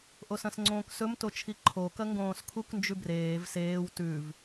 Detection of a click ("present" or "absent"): present